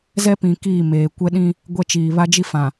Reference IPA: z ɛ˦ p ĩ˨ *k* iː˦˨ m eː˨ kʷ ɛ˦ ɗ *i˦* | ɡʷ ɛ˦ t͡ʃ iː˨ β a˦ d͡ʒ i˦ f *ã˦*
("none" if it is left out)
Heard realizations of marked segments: k, ĩ˦, ã˨

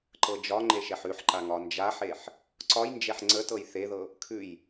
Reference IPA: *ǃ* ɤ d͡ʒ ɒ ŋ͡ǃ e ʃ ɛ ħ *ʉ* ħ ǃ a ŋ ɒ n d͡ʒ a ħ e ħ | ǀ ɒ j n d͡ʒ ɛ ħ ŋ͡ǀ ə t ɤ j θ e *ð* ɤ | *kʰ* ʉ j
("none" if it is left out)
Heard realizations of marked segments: ǃ, ʉ, ð, kʰ

